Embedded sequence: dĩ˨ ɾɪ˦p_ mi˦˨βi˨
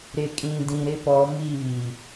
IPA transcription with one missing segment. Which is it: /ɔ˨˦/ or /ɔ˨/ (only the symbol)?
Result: ɔ˨˦